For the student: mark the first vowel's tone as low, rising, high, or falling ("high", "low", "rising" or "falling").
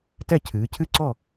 falling